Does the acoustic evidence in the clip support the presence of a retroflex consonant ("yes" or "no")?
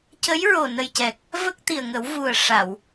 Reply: yes